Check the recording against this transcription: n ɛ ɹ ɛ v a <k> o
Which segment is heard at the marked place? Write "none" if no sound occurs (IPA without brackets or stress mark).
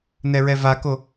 k